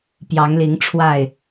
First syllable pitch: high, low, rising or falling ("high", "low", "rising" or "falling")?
rising